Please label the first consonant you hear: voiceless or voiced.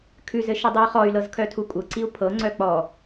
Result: voiceless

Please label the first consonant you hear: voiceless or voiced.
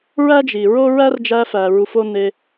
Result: voiced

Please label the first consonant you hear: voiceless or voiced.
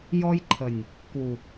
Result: voiced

